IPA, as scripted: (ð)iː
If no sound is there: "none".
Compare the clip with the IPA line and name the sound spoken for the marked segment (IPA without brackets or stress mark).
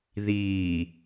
ð